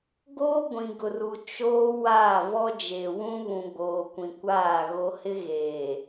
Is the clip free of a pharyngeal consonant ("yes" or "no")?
yes